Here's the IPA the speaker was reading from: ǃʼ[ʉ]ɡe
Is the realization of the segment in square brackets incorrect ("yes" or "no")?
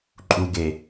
yes